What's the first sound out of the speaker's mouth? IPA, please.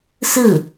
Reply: s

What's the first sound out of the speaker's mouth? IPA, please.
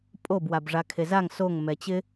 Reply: pʼ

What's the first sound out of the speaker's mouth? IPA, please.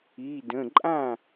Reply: i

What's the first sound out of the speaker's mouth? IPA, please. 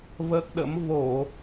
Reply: v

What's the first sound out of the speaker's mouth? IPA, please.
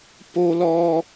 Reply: p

